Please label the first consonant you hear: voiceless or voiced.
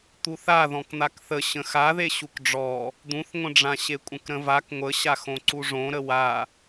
voiceless